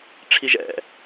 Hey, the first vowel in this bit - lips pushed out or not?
no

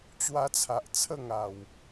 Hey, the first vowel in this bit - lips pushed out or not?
no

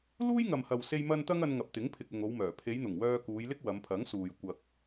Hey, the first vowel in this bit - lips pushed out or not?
yes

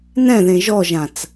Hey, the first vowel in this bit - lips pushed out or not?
no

